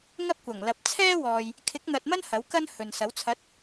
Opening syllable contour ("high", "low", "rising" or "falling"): high